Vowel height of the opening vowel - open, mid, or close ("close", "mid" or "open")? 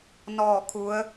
mid